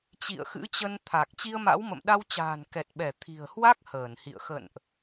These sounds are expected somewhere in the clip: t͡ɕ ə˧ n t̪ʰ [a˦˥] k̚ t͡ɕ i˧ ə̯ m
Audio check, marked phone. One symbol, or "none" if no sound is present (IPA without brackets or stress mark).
a˨˩